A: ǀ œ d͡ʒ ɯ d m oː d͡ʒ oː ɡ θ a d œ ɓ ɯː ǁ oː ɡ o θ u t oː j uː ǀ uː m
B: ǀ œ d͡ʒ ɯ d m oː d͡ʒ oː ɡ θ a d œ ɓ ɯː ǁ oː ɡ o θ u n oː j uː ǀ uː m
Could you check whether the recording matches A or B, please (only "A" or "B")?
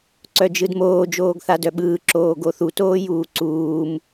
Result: A